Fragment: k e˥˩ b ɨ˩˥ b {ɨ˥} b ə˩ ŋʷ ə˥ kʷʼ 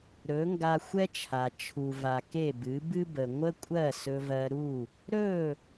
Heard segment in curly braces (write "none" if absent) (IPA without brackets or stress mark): ɨ˥